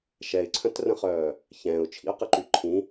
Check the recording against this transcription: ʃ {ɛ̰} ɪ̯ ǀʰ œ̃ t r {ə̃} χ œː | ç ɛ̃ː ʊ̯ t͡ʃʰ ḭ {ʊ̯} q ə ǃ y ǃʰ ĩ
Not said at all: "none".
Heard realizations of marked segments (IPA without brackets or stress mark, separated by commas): ɛ, ə̃, ʊ̯